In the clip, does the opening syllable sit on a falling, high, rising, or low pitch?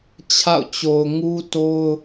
falling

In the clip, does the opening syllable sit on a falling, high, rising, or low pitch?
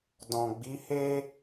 low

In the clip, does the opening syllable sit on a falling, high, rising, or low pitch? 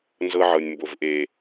high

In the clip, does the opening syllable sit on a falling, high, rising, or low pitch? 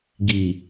low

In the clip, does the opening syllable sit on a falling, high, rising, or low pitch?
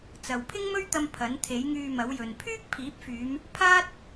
low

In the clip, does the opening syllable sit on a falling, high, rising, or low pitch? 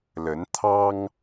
rising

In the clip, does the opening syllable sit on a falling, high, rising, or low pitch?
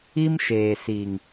high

